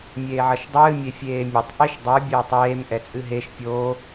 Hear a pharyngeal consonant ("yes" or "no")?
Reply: yes